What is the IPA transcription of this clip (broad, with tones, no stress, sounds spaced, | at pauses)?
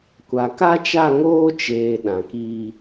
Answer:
kʷ a˨ k a˦ t͡ʃ a˦˨ ŋ oː˦ t͡ʃ eː˨ ɗ ã˨ k iː˦